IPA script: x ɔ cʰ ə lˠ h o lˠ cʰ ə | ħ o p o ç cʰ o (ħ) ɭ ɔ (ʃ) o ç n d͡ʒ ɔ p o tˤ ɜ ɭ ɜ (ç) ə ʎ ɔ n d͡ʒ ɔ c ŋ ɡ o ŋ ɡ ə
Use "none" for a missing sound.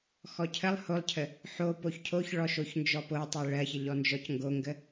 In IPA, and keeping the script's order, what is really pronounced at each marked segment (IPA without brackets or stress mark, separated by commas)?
ç, ʃ, ç